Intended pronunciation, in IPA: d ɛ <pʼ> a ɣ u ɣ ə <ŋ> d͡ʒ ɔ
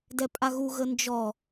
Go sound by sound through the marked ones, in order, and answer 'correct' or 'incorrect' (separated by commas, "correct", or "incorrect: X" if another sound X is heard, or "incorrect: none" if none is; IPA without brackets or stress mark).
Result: correct, incorrect: n